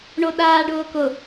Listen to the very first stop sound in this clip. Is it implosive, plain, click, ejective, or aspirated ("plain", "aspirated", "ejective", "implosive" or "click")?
implosive